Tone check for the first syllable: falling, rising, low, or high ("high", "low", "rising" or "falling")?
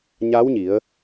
rising